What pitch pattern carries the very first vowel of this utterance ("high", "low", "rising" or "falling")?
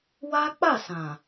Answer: high